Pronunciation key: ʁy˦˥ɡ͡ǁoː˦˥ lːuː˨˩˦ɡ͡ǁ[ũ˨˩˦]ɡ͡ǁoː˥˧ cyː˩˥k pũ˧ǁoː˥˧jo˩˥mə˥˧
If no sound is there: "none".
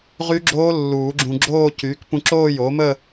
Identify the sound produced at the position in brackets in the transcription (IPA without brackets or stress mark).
ũ˧